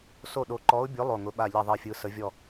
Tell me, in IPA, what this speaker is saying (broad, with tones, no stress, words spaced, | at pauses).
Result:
so˥˨ɗo˧˥ ǃɔ˧˥ʊ̯bʲʊ˧˥ lˠo˥˨ŋʊ˧˥ ɓa˥˨ʎɛ˥˨ðˤɛ˥˨fʲɯ˧˥ sə˧˥vʲɔ˥˨